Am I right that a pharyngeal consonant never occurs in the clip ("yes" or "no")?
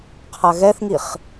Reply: yes